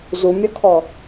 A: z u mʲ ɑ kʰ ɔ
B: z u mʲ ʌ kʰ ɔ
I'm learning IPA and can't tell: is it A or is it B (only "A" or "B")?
B